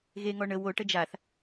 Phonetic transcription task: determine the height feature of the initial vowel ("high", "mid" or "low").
mid